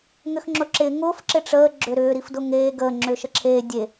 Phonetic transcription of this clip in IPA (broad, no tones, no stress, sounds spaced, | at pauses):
ŋ ʏ x ŋ͡ǁ ʊ ǁ ɪː ŋ ʊː f ǁ ɪ ʈ͡ʂ əː ɡ͡ǁ ʏ ɾ ʏː ɾ i f d ʊ ŋ eː ɡ əː ŋ͡ǁ ʏː ʃ ə ǁʰ eː dʲ e